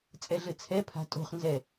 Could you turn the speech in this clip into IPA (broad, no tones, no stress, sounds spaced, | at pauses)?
t͡sʼ ɛ ɮ ɘ t͡sʰ ɛ pʰ a̤ tʼ o̤ χ n z ɛ